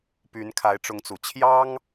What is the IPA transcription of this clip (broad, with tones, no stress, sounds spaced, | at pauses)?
p y˧˥ n kʰ a˧˥ ɪ̯ ʈ͡ʂ ʊ˧˥ ŋ t͡s u˨˩ t͡ɕʰ j ɑ˥ ŋ